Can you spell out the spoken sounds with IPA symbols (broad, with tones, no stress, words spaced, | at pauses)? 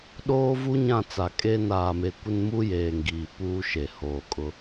ɗoː˦vu˦ɲã˦˨t͡sa˨ kʼe˦ naː˨me˨ kʷɪ˦nmu˦jeː˨ŋɡiː˨ puː˦ʃe˨ hoː˨kʼʊ˦